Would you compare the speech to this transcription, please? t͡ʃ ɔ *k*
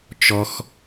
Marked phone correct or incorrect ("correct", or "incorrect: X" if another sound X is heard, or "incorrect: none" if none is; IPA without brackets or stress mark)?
incorrect: x